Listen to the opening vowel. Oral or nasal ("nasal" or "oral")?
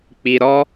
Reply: oral